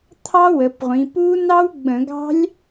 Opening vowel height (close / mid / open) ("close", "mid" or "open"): open